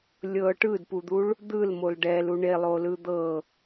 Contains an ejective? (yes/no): no